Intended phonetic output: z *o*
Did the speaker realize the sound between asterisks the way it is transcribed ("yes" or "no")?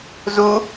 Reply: no